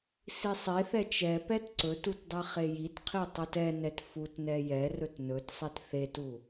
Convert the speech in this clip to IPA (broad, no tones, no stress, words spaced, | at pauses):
sisˤeθɛ t͡ʃɛ pɛtǀɵtut dˤeχejitqʰi tˤutɛnɛt futnɛ jɛrɵt nɵtsˤet θetu